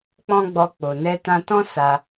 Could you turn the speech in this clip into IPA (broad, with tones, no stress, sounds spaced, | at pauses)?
k͡p ɔ̃˦ ɡ͡b ɔ˧ k͡p o˨ n ɛ˧ t ã˧ t ɔ̃˦ s a˧